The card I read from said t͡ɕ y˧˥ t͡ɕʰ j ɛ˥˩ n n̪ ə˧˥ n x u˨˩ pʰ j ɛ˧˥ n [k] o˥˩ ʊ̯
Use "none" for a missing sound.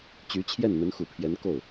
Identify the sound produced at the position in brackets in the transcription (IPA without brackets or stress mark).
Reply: k